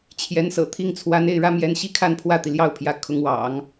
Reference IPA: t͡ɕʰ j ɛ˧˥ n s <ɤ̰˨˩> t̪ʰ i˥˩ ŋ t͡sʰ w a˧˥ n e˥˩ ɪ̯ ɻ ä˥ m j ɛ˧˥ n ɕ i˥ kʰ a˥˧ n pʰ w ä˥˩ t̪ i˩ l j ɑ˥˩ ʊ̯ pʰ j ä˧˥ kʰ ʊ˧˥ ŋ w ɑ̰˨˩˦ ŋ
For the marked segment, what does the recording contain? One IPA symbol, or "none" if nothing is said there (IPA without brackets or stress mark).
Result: ɤ̰˨˩